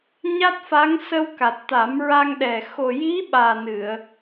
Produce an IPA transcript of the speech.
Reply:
ɲa˦˥t̚fa˧˥ŋ sə˧wka˨˩t̚ t̪a˨˩˦mɹa˧ŋɗɛ˨˩ xo˨˩ji˧˥ ɓaː˨˩nɨ˨˩˨ə̯

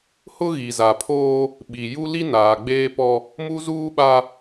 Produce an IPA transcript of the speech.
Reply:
hʊ˦ɣi˨za˨pʰoː˦ | ɓi˨ ju˦li˦naː˨ɡ͡beː˦ pɔ˦ | mu˦zuː˦ɓa˦

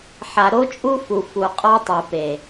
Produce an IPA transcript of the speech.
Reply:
ħa˨ɾo˦t͡ʃʼu˦fu˨ fu˨qʼɔ˦tˤɯ˨pe˨

